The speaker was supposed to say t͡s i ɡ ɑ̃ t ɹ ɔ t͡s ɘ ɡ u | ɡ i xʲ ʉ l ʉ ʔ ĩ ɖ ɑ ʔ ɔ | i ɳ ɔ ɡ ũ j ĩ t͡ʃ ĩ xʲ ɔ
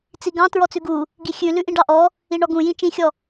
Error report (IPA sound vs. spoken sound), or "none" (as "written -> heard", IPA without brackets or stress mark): ɘ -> ʉ